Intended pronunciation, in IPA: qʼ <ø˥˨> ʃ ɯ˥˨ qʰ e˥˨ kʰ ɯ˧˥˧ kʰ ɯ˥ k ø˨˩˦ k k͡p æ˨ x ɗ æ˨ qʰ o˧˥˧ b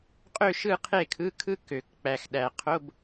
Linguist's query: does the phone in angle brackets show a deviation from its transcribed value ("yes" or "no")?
no